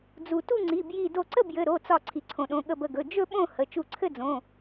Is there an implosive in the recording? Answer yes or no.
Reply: yes